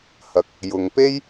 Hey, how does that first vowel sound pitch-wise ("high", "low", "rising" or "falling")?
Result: low